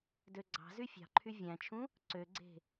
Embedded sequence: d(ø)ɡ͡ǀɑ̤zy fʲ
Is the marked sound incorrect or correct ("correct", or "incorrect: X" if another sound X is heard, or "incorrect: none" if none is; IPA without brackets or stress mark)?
correct